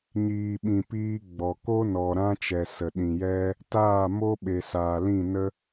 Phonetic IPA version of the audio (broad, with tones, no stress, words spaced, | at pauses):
ɲiː˨ɓĩ˨piː˧ ɡ͡bɔ˨ ko˦nɔ˨ ɾã˦t͡ʃɛ˨ sə˨ɗĩ˨jɛ˦ | taː˦˨mo˦ ɓe˨saː˨lĩ˦˨ nə˦